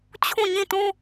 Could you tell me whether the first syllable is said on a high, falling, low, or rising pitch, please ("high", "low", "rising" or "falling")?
falling